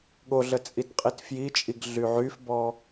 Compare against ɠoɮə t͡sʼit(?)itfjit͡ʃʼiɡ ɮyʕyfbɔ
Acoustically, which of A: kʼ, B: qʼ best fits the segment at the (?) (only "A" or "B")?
B